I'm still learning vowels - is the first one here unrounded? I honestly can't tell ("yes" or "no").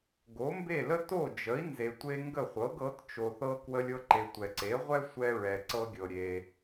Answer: no